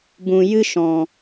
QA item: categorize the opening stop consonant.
plain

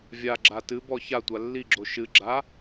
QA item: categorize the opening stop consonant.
click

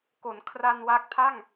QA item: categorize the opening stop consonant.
plain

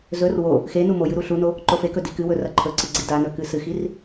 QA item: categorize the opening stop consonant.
click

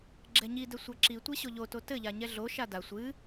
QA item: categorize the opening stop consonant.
click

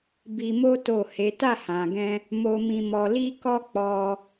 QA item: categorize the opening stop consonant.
plain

